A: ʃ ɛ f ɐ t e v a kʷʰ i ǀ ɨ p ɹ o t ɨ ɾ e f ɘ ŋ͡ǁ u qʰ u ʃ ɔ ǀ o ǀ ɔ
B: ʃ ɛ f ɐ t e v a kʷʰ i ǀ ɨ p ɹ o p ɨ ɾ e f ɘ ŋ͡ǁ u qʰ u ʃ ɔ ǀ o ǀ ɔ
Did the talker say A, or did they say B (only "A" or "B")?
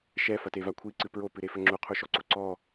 B